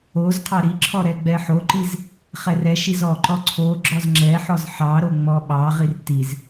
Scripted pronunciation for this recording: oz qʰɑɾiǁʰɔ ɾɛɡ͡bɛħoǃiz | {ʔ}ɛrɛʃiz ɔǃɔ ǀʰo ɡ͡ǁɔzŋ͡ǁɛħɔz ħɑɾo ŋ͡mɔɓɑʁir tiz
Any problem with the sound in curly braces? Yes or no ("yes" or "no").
yes